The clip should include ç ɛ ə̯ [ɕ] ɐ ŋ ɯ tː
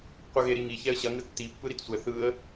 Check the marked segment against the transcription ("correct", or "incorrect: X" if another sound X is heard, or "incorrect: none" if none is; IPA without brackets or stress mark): correct